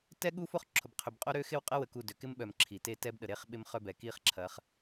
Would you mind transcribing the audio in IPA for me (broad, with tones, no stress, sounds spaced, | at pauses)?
t ɛ˦ ɠ u˦ f o˦ χ ǁʰ ʊ˨ b qʰ ʏ˨ b qʼ o˦ ɾ ø˦ x ɪ˦ w qʼ ɐ˦ w ə˨ k u˦˨ d ø˨ k ɪ˦ m ɓ œ˨ m ǁʰ i˨ t e˦ t ɛ˦ b ɗ ə˨ ɾ e˦ χ ɓ ɪ˦ m χ œ˦ b ɛ˨ k i˦ χ ǁʰ ɐ˨˦ χ